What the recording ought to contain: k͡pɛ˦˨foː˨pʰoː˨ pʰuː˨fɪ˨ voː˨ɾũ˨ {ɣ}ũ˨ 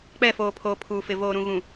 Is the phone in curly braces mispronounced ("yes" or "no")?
no